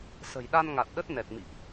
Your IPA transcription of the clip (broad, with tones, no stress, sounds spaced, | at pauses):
s ə̤˨˩ j ɗ a˧ n ŋ a˨˩ t̚ ɗ ə˦˥ t̚ n ɛ˨˩ t̚ m ḭ˧˨ ʔ